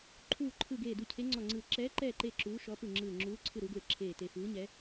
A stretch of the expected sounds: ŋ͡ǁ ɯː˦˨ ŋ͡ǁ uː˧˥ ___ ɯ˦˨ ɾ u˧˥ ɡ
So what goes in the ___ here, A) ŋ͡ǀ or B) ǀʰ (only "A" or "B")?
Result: B